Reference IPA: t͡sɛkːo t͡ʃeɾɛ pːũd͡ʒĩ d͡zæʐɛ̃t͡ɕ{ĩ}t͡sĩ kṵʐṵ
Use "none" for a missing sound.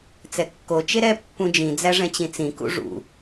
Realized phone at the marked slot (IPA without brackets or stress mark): ĩ